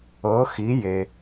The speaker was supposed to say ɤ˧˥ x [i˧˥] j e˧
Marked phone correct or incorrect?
correct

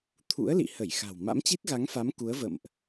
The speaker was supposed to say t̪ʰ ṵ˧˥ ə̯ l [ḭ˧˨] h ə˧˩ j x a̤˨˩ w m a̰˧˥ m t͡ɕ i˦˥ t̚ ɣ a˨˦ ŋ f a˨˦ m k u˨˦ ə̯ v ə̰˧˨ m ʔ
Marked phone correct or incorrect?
correct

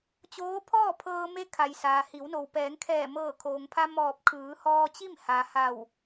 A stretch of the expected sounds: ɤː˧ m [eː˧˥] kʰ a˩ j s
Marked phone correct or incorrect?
incorrect: e˧˥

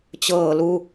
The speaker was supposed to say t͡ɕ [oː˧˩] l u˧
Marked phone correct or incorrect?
incorrect: ɤː˧˩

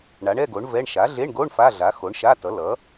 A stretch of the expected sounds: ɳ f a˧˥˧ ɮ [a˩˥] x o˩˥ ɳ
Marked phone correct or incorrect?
correct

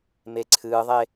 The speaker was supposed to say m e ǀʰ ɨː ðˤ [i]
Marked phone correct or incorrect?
incorrect: e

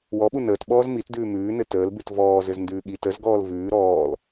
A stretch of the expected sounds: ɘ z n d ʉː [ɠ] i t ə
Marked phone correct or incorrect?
correct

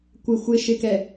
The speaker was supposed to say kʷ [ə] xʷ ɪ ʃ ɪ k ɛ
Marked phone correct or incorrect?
incorrect: ɪ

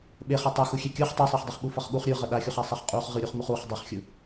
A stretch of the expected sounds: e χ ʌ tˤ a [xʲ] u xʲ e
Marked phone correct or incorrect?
incorrect: x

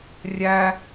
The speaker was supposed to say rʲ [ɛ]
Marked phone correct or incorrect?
incorrect: æ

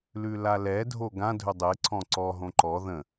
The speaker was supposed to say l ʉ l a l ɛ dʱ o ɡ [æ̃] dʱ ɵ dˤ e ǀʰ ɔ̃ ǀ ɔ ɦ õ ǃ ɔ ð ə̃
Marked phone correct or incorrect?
incorrect: ã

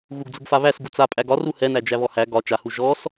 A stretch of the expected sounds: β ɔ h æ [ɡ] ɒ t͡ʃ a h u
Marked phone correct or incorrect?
correct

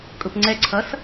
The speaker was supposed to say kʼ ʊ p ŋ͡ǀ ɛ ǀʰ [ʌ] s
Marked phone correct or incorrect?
correct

